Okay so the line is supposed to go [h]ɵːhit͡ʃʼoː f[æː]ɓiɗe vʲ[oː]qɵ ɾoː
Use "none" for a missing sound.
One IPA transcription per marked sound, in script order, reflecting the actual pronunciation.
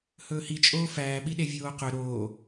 h, æː, oː

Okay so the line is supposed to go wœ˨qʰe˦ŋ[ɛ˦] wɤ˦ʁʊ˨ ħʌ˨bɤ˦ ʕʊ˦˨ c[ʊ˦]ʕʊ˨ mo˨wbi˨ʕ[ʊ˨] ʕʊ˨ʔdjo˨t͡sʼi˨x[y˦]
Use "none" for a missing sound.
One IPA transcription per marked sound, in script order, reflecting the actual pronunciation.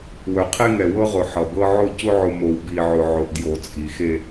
ɛ˨, ʊ˦, ʊ˨, e˦

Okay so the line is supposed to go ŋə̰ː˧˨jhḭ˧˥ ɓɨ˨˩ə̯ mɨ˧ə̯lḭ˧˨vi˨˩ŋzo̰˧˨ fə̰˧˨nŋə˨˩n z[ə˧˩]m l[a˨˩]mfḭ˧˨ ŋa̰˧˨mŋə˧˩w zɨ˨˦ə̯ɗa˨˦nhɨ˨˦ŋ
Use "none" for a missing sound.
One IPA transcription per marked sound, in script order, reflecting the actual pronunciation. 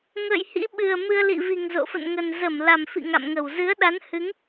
ə˧˩, a˨˩

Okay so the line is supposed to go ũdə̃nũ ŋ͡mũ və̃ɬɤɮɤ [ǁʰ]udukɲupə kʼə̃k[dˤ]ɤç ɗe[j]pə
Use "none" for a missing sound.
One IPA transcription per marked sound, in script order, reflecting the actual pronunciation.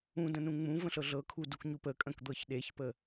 kʰ, d̪, ç

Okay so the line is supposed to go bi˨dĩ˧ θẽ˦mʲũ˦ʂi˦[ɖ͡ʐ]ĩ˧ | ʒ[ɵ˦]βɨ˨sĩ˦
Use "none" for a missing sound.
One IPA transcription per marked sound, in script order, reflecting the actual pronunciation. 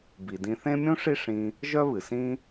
ʂ, œ˦

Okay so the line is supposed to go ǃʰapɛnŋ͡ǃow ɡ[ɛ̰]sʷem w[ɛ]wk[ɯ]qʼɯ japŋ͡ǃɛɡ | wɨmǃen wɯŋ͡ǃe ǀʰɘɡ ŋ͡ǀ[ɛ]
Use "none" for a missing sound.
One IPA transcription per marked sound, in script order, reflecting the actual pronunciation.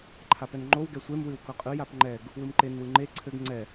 ɛ, ɨ, ɤ, ɛ

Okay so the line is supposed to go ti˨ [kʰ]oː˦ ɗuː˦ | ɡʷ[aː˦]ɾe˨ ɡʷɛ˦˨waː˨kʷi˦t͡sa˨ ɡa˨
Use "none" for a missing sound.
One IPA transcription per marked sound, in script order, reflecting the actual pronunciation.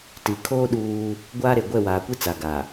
kʰ, aː˦

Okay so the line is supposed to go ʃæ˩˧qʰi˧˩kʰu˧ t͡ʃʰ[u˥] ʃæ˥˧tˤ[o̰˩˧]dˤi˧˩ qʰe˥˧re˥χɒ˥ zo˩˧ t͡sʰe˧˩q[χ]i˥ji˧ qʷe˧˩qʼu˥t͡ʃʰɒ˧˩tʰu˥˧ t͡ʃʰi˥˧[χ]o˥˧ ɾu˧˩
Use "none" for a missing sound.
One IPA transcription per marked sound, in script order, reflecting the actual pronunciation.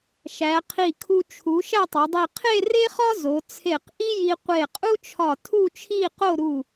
u˩˧, o˩˧, ʔ, q

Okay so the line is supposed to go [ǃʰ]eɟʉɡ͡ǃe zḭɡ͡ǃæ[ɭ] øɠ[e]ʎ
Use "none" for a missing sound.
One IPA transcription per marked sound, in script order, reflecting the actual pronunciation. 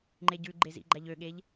ŋ͡ǃ, ʎ, e

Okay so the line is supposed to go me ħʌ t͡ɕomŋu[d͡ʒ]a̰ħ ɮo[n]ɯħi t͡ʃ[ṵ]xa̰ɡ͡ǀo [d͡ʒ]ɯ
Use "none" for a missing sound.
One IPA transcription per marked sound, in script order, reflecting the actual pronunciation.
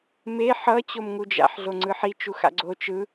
d͡ʒ, ŋ͡ǀ, u, t͡ʃ

